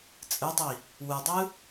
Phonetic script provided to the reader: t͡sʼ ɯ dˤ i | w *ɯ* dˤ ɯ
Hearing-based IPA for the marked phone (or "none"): ɯ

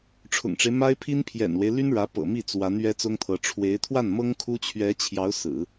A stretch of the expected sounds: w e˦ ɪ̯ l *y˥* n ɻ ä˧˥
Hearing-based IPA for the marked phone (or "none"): y˥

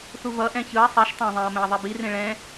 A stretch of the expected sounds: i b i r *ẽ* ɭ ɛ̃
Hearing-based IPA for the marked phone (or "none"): ẽ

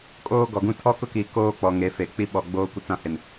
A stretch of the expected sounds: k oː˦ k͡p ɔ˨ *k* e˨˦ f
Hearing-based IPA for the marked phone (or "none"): ŋ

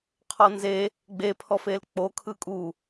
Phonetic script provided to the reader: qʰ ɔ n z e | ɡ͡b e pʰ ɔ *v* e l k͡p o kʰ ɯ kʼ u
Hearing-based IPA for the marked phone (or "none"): f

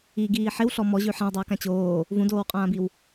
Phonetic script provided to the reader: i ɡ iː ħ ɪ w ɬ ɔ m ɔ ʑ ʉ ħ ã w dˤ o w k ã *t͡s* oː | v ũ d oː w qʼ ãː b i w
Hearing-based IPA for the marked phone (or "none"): t͡ɕ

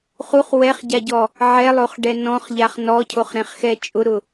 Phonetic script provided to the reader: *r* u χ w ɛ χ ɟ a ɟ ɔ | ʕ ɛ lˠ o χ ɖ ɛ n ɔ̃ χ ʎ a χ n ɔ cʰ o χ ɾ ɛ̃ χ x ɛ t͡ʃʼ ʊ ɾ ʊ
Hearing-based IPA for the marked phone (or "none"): χ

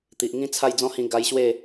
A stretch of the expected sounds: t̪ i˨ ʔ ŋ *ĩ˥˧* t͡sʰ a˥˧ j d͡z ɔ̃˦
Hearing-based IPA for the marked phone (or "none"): ĩ˦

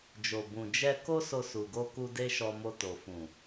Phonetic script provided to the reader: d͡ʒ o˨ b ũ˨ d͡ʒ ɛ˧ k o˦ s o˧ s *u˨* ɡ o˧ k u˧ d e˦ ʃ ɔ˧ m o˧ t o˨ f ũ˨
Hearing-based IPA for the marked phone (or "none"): u˨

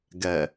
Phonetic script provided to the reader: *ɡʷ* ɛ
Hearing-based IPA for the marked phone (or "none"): ɡ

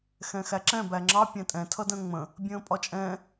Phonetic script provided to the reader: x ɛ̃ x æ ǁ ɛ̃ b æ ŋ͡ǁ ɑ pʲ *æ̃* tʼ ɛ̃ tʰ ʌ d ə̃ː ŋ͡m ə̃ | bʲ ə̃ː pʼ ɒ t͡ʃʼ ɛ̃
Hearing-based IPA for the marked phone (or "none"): æ̃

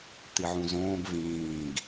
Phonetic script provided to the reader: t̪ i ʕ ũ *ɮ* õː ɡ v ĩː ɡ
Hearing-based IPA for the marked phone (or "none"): z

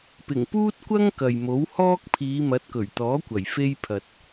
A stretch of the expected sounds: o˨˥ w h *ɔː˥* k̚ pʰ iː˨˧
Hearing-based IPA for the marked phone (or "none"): ɔː˥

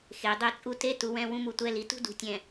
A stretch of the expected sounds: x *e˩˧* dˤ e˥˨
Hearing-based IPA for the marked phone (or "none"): e˩˧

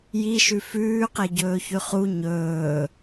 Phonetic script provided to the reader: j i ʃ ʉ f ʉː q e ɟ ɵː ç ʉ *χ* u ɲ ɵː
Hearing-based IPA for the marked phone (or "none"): χ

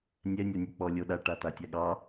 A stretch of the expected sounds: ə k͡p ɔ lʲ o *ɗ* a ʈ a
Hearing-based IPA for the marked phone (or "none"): ɗ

